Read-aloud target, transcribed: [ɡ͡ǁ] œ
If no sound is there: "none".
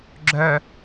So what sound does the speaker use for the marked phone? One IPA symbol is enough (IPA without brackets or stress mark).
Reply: ɡ͡ǁ